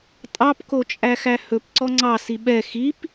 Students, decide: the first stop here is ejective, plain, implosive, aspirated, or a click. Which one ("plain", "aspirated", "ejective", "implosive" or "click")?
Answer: ejective